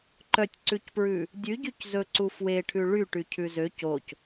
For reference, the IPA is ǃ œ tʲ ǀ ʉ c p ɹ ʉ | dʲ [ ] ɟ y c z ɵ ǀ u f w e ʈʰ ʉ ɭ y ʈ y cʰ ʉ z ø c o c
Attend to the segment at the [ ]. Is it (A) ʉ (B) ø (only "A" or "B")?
A